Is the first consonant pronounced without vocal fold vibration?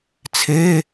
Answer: yes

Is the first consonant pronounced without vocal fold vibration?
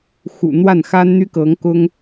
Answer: yes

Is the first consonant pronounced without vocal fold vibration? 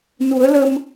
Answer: no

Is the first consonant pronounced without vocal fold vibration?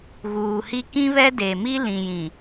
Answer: no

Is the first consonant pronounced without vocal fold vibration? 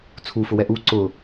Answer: yes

